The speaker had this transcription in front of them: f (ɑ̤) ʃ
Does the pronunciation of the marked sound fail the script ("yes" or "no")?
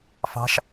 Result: no